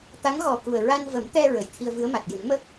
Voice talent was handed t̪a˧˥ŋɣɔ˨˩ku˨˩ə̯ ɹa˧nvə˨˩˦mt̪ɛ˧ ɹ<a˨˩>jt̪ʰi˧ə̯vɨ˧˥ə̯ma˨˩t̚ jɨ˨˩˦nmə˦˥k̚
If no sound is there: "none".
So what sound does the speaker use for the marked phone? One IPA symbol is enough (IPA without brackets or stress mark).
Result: ə˨˩